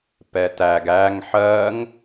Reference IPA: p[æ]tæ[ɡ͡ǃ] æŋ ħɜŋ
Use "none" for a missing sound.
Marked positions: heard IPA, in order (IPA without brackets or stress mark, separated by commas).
ɛ, ɡ